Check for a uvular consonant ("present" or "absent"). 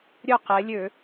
present